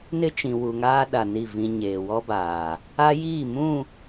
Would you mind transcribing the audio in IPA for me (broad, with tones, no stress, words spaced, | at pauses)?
nɪ˦t͡ʃĩ˨ wu˨ŋaː˦ ɗa˨ni˦˨vĩ˦ ɲeː˨ wɔ˦baː˨ | a˦jiː˦˨mũ˦˨